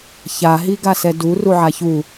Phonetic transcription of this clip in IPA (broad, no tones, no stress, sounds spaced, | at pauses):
ç a ɦ i ɡ a s ɛ d u r u ʕ a ç u